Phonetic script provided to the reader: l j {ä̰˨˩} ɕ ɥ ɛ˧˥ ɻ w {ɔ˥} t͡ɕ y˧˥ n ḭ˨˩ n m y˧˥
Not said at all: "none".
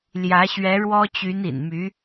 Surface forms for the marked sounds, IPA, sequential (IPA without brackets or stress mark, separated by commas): ä˧˥, ɔ˥